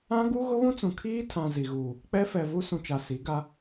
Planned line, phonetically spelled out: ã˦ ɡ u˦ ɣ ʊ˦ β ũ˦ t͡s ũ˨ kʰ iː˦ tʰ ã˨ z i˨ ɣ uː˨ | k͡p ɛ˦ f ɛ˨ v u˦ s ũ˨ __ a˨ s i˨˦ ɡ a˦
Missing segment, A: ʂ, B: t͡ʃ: B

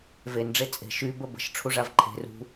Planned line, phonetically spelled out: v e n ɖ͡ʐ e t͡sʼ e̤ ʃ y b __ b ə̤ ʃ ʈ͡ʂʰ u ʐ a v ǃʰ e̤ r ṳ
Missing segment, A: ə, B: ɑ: A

